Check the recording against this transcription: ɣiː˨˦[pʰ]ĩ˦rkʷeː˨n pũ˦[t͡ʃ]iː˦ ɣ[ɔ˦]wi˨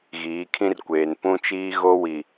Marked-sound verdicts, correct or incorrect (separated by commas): incorrect, correct, incorrect